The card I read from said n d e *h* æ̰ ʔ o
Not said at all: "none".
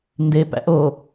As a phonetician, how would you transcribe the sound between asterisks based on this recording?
p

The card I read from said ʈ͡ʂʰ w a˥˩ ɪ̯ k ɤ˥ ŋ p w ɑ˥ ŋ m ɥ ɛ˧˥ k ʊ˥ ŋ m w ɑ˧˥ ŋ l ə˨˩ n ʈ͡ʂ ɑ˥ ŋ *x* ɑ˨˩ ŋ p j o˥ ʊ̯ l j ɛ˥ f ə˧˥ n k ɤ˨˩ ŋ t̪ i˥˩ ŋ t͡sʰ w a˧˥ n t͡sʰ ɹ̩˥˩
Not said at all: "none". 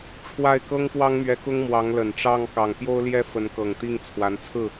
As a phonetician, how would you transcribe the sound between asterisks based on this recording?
k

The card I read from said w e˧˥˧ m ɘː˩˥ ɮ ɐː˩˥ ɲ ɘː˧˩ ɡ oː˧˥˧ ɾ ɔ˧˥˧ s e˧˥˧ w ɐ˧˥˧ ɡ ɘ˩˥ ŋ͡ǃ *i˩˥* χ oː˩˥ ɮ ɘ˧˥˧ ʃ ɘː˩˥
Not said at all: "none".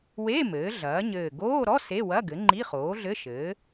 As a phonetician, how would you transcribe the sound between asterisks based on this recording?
i˧˥˧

